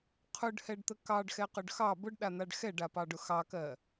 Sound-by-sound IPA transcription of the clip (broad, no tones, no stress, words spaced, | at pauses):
qʰʊɖhɛɖt̪ə kɑɖxɛqʊɖ xɑ bʊɖɗan̪aɖ xɛɖapɑɖʊ xɑkɜ